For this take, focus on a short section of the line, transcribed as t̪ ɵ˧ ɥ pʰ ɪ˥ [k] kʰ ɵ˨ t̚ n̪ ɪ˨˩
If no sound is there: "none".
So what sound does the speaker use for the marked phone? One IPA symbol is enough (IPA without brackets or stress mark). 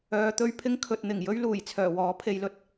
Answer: ŋ